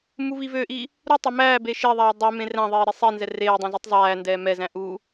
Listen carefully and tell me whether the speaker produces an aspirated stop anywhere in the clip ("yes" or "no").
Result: no